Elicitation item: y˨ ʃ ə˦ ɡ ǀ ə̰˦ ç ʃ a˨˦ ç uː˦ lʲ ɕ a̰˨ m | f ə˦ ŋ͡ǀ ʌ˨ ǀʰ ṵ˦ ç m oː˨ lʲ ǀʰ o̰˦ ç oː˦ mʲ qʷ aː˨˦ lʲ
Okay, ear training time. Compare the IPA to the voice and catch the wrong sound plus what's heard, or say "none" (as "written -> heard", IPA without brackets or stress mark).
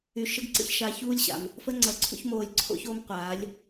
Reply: mʲ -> m